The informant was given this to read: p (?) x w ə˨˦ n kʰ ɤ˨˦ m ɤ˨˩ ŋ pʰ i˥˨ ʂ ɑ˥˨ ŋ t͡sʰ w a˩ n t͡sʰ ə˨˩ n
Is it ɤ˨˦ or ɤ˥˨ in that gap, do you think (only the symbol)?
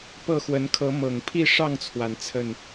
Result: ɤ˥˨